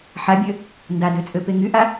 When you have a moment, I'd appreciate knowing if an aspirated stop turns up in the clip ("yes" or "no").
no